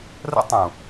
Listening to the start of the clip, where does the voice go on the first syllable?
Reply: high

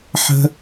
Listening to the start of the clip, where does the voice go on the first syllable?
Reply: high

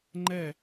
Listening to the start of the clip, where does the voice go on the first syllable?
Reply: falling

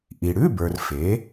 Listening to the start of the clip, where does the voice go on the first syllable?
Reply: low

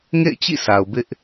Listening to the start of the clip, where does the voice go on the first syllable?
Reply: falling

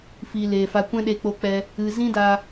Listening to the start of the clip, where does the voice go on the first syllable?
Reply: low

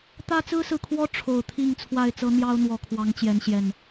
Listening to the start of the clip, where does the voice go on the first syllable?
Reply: high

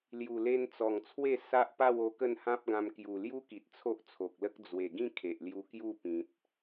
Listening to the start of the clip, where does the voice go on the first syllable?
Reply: low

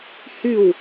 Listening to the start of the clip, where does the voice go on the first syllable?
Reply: falling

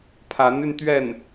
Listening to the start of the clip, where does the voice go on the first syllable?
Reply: rising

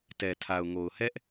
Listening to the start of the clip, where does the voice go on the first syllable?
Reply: low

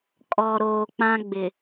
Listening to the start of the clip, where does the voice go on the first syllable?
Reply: low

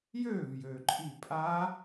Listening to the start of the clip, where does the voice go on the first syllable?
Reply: falling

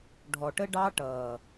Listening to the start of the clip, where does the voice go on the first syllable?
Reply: low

